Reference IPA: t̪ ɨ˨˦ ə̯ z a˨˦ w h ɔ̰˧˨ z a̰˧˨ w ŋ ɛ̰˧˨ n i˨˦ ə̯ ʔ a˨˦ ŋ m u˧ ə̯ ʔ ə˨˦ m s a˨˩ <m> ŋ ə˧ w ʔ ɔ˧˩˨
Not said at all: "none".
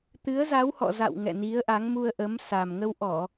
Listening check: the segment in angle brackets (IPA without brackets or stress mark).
m